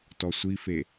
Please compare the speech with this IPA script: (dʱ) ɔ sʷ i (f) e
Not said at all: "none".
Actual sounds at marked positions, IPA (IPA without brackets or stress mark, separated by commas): t, f